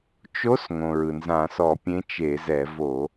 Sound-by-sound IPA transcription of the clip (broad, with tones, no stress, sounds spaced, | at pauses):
t͡ʃ o˧˥ s ŋ õ˩ ɹ ɯ˩ n z ã˧˩˧ s ɔ˧˩˧ pʲ ẽ˧˥ t͡ʃ e˧˩˧ z ɛ˧˩˧ v o˧˩˧